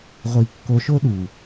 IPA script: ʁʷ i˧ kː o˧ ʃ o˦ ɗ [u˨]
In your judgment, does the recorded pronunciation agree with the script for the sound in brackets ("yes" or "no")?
yes